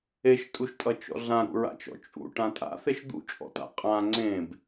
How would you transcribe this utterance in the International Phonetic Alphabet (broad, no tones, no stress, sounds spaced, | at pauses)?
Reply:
e ʃ tʼ u ʃ tʼ ʌ t͡ʃ ɔ̰ ɮ ã ɾ ṵ ɹ a̰ t͡ʃ ɔ̰ t͡ʃʼ ṵ ʈ ã tʼ a̰ θ e ʃ d̪ ṵ t͡ʃʼ ɔ̰ t a̰ qʼ ã ŋ͡ǀ ẽ b